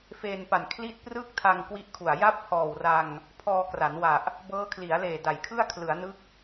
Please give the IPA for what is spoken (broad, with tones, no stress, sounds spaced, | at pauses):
f eː˧ n p a˨˩ n kʰ l i˥˩ t̚ p r ɯː˥˩ k̚ tʰ a˧ ŋ k w i˥˩ ʔ kʰ u˨˩ a̯ j a˥˩ p̚ h ɔː˨˩ w r a˧ ŋ | pʰ ɔː˧ k r a˩˦ n w a˨˩ ʔ | b ɤː˦˥ kʰ l i˩˦ a̯ l eː˨˩ d a˩˦ j kʰ ɯ˥˩ a̯ kʰ l ɯ˩˦ a̯ n ɯ˦˥ k̚